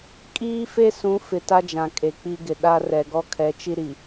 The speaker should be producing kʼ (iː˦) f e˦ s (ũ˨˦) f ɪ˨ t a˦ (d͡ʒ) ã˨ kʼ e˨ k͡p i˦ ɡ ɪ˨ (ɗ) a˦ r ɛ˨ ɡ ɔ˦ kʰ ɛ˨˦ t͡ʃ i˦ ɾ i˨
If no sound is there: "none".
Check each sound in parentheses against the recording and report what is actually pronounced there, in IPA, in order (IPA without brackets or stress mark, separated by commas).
iː˦, ũ˨˦, d͡ʒ, ɗ